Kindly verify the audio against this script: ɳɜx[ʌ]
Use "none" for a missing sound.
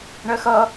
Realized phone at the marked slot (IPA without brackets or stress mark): ʌ